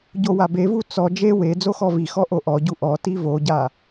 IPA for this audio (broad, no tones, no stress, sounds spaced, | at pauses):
ɟ o w a b e v u t͡s ɔ d͡ʒ e w e d͡z o x ɔ v i x ɔ ʔ o ʔ ɔ ɟ u ʔ ɔ t i v o ɟ a